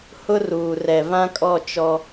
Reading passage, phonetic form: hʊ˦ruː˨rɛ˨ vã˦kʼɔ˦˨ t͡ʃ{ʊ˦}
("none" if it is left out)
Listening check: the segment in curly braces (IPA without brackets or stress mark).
ɔ˦